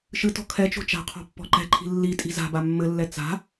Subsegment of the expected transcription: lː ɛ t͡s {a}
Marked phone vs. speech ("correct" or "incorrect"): incorrect